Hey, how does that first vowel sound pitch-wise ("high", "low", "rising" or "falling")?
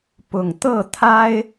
low